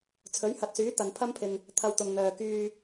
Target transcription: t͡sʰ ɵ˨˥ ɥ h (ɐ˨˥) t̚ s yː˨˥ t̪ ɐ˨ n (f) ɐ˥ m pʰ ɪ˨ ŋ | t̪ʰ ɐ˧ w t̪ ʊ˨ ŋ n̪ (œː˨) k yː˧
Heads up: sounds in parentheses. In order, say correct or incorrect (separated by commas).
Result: correct, incorrect, correct